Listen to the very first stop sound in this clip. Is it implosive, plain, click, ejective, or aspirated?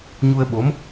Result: implosive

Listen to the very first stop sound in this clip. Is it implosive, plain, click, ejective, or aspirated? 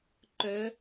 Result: click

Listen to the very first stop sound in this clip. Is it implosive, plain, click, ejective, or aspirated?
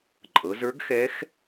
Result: click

